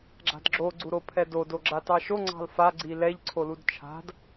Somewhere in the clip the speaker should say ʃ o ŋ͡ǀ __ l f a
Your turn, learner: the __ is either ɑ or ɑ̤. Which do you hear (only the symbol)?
ɑ̤